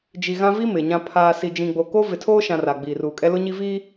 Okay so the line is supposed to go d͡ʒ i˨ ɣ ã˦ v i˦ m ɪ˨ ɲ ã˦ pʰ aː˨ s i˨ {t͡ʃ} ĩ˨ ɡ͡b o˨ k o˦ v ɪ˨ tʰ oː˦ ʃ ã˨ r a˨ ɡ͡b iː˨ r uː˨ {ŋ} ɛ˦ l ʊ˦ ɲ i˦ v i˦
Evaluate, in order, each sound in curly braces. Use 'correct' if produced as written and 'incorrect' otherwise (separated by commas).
incorrect, incorrect